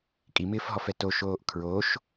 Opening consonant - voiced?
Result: no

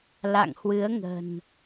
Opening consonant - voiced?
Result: yes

